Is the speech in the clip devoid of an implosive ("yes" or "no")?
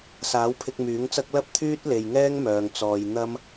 yes